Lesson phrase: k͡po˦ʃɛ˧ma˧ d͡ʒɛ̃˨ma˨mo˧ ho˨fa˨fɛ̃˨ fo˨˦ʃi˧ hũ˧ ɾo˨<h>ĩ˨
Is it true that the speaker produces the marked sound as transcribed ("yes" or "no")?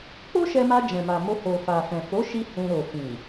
no